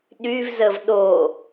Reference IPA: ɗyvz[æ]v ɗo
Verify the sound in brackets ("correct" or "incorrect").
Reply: incorrect